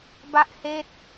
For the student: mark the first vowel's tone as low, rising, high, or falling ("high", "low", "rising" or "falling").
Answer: high